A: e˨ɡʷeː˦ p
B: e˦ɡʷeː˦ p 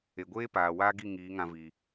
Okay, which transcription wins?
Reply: A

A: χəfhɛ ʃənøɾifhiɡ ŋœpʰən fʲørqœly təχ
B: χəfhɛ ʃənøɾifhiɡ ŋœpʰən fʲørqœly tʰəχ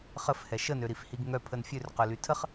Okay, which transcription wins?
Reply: B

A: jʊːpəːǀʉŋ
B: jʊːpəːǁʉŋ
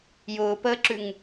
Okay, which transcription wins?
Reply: B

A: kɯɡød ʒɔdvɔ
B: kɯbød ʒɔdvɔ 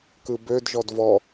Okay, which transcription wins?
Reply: B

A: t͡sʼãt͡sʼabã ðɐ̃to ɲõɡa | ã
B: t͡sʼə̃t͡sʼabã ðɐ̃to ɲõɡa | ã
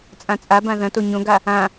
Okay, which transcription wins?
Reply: A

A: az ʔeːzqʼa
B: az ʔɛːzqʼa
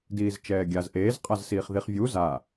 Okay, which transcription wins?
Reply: A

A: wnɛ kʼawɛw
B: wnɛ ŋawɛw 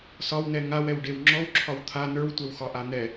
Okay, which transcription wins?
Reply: B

